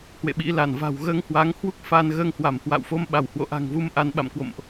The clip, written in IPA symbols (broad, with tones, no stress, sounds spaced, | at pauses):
h w ḛ˧˨ ɓ ḭ˧˥ l a˧˩ n v a̤˨˩ w ɣ əː˧ ŋ h w a˨˦ ŋ h w u˦˥ k̚ f a˧ n ɣ əː˧ ŋ h w a˧˩ m h w a̰˧˨ w f o˧ m ɓ a˧˩ w h w o̰˧˨ ʔ a̤˨˩ ŋ v u˧ m ʔ a˧ n ɓ a̰˧˨ m k w o̰˧˨ m ʔ